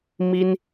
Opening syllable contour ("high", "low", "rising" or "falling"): high